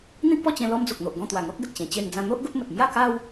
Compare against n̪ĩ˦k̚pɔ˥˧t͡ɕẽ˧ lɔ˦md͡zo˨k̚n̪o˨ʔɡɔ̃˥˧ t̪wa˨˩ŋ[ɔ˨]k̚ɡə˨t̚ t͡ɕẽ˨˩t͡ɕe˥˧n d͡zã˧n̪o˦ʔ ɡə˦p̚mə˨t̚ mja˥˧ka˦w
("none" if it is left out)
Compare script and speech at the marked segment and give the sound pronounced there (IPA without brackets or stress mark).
ɔ˦